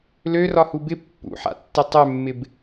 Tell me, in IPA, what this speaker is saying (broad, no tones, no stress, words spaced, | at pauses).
lørɒhu bɪ pːṵħa̰tːɪ tˤømːɪb